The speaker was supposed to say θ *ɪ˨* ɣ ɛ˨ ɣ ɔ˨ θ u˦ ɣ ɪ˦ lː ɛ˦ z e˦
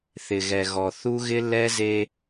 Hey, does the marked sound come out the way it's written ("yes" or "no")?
yes